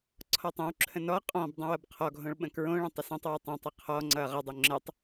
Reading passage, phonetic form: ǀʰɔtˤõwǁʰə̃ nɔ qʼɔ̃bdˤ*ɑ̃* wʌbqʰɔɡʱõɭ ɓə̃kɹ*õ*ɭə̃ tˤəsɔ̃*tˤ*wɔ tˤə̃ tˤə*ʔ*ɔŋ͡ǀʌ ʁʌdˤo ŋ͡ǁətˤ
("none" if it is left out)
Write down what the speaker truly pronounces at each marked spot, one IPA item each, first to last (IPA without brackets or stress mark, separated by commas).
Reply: ə̃, õ, tˤ, qʰ